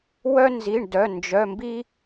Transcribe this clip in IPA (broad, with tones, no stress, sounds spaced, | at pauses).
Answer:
w œ˦ n z i˩˧˩ ɳ d œ˩˧˩ n d͡ʒ œ˩˧˩ m b i˦